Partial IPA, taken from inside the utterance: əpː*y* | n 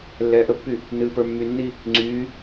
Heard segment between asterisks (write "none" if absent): y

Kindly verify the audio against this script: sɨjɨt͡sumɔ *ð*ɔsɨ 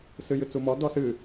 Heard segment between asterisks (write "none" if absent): d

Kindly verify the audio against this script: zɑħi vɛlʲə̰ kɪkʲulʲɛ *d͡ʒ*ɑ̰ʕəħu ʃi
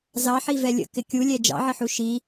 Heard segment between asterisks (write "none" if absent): d͡ʒ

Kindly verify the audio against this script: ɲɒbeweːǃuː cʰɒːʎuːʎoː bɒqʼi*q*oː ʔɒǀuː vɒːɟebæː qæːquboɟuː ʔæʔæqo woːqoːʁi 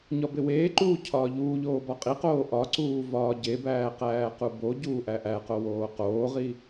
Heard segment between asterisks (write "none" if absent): q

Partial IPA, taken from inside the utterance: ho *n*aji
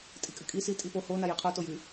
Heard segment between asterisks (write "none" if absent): n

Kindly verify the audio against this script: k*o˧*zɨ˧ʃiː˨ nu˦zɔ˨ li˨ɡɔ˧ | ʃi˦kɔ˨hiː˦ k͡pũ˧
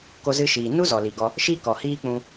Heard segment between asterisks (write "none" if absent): o˧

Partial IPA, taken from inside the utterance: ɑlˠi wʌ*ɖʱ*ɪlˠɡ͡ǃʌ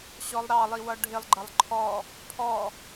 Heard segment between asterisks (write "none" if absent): ɖʱ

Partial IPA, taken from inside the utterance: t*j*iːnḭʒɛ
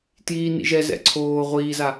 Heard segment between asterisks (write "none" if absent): j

